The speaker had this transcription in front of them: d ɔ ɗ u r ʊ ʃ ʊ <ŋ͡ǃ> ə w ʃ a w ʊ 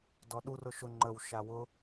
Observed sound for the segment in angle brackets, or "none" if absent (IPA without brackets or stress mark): ŋ͡ǃ